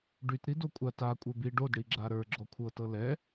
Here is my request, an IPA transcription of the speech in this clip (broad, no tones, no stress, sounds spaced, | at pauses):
ɖ y t ɾ i d o kʷʼ a t a kʷʼ ə˞ b i ɖ o d ɽ i ɡ͡ǁ a ɾ ə˞ ɡ͡ǁ ɔ kʷʰ ɤ t ɤ l ɛ